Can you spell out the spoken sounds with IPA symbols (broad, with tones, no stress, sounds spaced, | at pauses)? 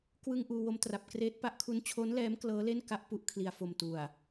k w ɯ˧ ŋ ʔ uː˧ w o˦˥ m t r a˨˩ p̚ k r eː˦˥ t̚ p a˦˥ ʔ kʰ u˦˥ n t͡ɕʰ oː˦˥ n l ɛː˦˥ m k l ɤː˦˥ l e˥˩ n k a˥˩ ʔ p u˥˩ ʔ kʰ l i˨˩ a̯ f o˨˩ m t u˨˩ a̯